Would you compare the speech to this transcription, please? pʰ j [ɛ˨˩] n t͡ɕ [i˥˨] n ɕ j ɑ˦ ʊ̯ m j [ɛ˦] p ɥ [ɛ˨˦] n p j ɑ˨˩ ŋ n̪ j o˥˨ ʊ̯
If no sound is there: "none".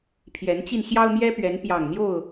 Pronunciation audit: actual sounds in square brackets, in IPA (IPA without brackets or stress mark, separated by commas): ɛ˨˦, i˧, ɛ˦, ɛ˨˦